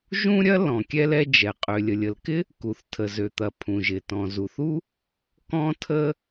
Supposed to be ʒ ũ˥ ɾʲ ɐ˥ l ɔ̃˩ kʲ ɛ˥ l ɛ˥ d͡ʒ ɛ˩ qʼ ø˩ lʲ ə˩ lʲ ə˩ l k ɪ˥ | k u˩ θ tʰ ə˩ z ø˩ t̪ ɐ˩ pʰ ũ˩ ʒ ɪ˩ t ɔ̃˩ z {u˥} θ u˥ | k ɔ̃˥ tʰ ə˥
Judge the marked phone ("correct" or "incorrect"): incorrect